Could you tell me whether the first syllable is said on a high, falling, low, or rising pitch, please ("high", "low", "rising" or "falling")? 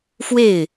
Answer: falling